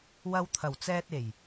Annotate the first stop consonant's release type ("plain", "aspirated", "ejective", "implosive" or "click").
aspirated